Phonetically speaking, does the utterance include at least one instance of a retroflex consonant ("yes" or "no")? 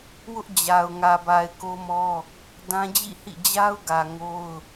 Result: no